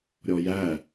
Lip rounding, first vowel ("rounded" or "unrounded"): rounded